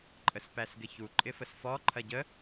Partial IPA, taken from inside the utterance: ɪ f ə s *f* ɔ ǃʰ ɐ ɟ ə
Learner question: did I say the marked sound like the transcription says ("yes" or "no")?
yes